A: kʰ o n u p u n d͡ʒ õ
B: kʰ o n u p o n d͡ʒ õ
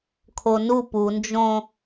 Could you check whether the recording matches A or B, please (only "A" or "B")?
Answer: A